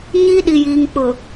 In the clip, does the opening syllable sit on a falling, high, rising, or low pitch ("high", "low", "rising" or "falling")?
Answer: high